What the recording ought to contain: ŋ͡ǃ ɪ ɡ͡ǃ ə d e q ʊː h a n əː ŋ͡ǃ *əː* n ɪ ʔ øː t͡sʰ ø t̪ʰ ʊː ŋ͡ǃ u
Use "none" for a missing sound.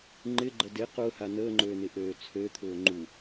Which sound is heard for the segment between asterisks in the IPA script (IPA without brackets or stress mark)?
øː